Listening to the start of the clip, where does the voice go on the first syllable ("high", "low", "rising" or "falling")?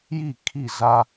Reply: falling